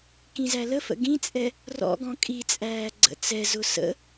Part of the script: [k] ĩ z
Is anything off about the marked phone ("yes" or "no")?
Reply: no